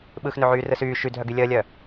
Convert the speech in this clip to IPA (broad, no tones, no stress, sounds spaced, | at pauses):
ɓ ɯ x n ø ʕ yː r ɯ s yː ʃ y dʱ œ ɡ y lʲ əː lʲ œ